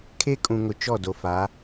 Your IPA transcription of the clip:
kʰ e˦ kʼ ũ˨ ŋ ʊ˨ t͡ʃ ɔ˦˨ d o˨ f a˨˦

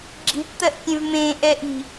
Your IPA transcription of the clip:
ɡ͡ǁ i̤ ʈ t̪ ɜ ʔ kʲ ẽ v m ẽ ʔ ɛ ʔ i̤

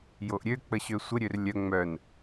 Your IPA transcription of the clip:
j o ʔ ɾʲ ø k͡p ə ɕ ø sʷ ə ɾʲ ø r lʲ œ ŋ͡m œ n

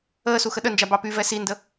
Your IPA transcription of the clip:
əː s u x ə ɗ ə n d͡ʒ a b ɑ p y v ɛ s i n d ə

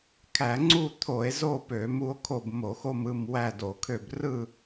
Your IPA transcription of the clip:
kʰ æ˧˩˧ ŋ͡ǀ u˦˨ t̪ʰ o˧˩˧ e̯ z o˦˨ p ø˧˩˧ m u˦˨ o̯ kʰ o˦˨ b m o˧˩˧ x o˦˨ m ɯ˦˨ m w æ˦˨ d o˧˩˧ kʰ ø˦˨ b r ɯ˦˨

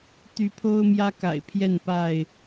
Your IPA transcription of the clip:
t̪ y˨˦ pʰ o˦ ʊ̯ m j ä˦ k a̰˨˩ ɪ̯ pʰ j ɛ˥˨ n p a˥˨ ɪ̯

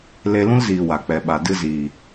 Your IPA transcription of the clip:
l e˧ l ũ˦ l z iː˨ w a˨ k͡p ɛ˨ ɓ a˨ d ɨ˧ z iː˨

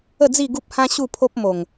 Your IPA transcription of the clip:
ə˥˧ d͡z i˥˧ ɡ u˦ p̚ h ã˦ ɕ u˥˧ pʰ o˦ p̚ m o˨˩ ŋ

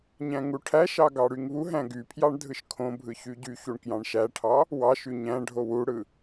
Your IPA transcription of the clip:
ɲ æ̃ ŋ u ʈʰ æ ʃ ɑ ɡ ɑ ɽ y ŋ β u ɦ æ̃ ɡ y pʰ j ɑ ɳ dʱ ɯ ʃ kʰ õ bʱ ɯ ç y ɟ y ç u ɳ k j ɑ̃ ɳ ʃ æ ʈʰ ɑ | w ɑ ʃ y ɲ æ̃ ɖʱ o w u ɽ ɯ

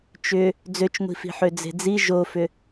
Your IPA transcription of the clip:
t͡ʃ ʏ | d͡z ø t͡ʃ ŋʷ i̤ f i̤ ħ ø d͡z e̤ d͡z i ʒ o f ʏ

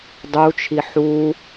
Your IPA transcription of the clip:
dˤ u t͡ʃʰ i ħ u

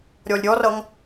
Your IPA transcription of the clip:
ɾʲ ɔ lʲ ɾʲ ɔ r ʌ ŋ

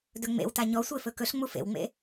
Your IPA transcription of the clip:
d ɵ ŋ͡m ḛ w t a ɲ ɔ sʷ e f ɵ k ɵ ɬ ŋ͡m u f ḛ w ŋ͡m ḛ

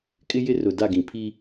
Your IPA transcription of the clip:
kʼ ɪ˦ j ɪ˦ r ʊ˨ d a˦˨ ɡ ĩ˨ pʰ i˦

